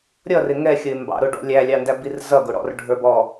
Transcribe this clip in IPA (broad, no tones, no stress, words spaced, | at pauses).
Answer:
ɾʲʌrɪ ŋɛxʲəɪ̯ mbɑ̰ ɾʊɖɔ̰ lʲælʲɑndæbir zʌɡʊɽɔ̰rɖʱə˞b ɔ